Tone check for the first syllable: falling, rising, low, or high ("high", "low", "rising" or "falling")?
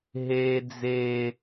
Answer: high